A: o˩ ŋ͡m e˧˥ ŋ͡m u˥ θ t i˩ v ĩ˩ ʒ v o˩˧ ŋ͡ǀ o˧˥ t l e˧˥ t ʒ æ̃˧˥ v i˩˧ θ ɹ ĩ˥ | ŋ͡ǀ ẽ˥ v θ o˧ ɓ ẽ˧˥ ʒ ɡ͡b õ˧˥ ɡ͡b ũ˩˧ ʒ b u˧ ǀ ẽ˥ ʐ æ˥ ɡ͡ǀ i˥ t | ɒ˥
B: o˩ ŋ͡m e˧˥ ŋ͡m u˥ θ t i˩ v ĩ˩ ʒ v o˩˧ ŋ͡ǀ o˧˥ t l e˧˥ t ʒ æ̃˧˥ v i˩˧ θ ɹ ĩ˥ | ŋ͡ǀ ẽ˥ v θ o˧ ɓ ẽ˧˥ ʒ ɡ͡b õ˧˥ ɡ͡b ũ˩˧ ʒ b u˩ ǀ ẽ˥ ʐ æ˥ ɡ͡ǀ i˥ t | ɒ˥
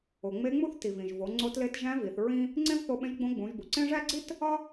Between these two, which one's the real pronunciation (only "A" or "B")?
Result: B